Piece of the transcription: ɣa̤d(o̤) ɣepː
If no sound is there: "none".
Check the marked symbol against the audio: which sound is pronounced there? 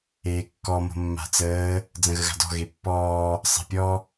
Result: ɔ̤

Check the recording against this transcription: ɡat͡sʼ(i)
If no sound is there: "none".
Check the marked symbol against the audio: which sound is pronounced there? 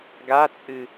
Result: ɨ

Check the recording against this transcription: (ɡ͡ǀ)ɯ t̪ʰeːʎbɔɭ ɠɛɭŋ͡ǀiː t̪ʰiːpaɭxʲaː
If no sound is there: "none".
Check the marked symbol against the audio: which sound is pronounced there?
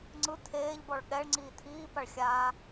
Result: ŋ͡ǀ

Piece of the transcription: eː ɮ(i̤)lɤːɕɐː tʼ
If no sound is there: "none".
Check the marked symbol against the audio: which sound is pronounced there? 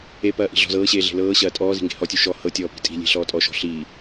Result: e̤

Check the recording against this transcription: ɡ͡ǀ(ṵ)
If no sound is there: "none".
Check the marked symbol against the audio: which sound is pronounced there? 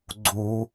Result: u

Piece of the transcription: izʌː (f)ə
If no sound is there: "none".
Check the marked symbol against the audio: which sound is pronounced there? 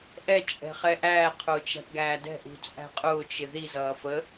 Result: f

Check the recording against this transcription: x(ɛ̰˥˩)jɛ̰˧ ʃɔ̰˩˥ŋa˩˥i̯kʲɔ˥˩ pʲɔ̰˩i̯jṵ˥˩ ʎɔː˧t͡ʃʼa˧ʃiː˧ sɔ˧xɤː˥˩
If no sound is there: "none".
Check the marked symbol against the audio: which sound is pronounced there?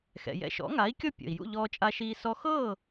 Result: ɛ̰˩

